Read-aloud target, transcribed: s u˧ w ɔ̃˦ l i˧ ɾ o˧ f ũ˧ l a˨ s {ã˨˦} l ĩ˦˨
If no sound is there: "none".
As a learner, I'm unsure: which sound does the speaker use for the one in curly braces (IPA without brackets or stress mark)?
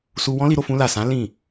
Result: ã˨˦